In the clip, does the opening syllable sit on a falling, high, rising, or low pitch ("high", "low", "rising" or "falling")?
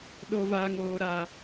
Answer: high